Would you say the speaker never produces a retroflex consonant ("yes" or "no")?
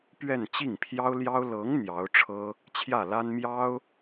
no